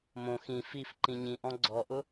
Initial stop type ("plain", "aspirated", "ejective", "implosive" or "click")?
click